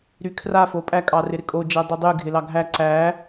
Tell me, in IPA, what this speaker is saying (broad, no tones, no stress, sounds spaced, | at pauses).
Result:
ɾ y kʰ r a f o pʼ æ kʼ ɑ r ɪ ɾ ɪ kʼ o d͡ʒ ɛ dˤ i dˤ y ɡʱ ɪ l ɑ ɡʱ æ ǀ æ